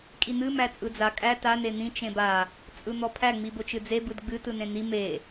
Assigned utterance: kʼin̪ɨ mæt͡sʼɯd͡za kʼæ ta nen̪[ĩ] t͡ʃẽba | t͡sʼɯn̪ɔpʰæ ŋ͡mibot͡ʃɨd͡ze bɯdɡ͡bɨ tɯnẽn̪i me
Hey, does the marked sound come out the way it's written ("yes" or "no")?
yes